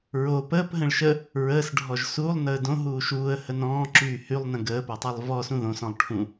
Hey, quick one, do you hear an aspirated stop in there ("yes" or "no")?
yes